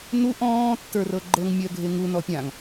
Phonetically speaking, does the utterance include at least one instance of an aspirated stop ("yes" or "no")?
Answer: no